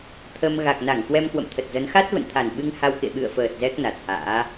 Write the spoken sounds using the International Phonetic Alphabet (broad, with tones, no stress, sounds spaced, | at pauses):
t̪ʰ ə˧ m ɣ a˨˩ k̚ n a˧˩ ŋ k w ɛ˧ m k w ə̰˧˨ m t̪ʰ ə˨˩ t̚ z ə˨˦ n x a˦˥ t̚ v ə̰˧˨ n t̪ʰ a˨˩ n ɓ ɨ˧ ŋ h a˧ w k ḛ˧˨ ɓ ɨ̰˧˨ ə̯ f əː˨˩ t̚ z ɛ˦˥ k̚ n a˨˩ t̚ h a̰ː˧˥